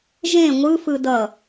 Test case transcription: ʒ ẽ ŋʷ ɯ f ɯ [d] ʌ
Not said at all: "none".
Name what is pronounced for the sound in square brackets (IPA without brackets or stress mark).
d